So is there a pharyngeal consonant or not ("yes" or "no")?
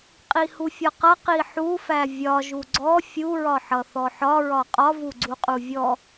yes